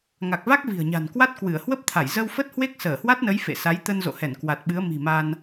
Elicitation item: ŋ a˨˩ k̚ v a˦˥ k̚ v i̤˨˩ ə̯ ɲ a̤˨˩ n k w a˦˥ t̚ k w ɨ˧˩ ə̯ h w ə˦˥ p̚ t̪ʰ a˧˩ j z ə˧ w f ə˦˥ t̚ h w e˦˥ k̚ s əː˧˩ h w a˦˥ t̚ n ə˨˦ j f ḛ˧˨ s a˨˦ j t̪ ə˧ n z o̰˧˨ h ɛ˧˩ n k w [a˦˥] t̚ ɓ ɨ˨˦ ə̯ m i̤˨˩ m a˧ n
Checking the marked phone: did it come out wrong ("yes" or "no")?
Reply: yes